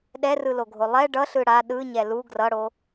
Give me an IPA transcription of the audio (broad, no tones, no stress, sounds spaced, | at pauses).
ɗ ɛ r ɯ l o ɡʱ o lˠ ɛ ɖ ʌ ɬ ɯ ɽ a ɗ ɯ ɲ ɛ l u ɡ r ʌ ɽ o